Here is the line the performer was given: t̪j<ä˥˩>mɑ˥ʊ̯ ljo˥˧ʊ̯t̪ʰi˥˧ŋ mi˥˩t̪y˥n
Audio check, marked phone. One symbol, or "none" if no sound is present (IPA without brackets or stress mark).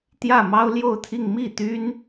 ä˥˩